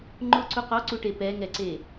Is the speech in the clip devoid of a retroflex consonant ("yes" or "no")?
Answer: no